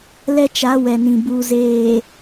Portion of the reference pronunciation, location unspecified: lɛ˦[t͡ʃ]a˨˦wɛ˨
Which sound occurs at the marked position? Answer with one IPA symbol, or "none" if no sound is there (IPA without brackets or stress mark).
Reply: t͡ʃ